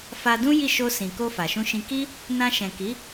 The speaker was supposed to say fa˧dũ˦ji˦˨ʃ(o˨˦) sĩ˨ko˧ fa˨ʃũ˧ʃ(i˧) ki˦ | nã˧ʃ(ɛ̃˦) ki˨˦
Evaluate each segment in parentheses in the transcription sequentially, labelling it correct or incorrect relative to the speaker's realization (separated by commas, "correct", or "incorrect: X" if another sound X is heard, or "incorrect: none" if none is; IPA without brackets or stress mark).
incorrect: o˧, incorrect: ĩ˧, incorrect: ɛ̃˨